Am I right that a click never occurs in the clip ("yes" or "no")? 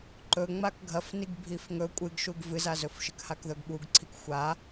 no